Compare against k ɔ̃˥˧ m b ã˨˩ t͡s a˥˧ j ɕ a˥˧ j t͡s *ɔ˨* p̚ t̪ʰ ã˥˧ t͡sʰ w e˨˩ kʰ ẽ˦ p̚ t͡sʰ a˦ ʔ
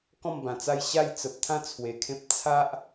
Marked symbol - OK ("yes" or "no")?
no